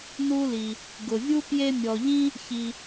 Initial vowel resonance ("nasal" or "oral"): oral